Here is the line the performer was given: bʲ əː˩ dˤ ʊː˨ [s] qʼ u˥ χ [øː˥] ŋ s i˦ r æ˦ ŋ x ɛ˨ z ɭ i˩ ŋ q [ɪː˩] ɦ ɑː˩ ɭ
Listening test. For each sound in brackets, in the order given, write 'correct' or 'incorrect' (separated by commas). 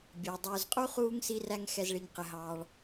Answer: incorrect, incorrect, incorrect